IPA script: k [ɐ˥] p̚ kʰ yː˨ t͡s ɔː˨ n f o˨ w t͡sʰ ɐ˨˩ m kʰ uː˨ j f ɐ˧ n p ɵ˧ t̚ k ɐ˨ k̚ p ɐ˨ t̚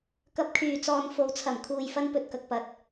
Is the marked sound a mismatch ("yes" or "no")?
yes